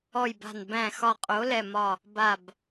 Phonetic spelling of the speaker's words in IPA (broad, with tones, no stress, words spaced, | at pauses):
ɔ˧˩jba̤˧˩n bæ̃˧˩xɒ˧˩qʼo˨˥ lɛ˧˩mɒ˧˩ | ba˧˩b